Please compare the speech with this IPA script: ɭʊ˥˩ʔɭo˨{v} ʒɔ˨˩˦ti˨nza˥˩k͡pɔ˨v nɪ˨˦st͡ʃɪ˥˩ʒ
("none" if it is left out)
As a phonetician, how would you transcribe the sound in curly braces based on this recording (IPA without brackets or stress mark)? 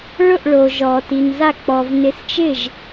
none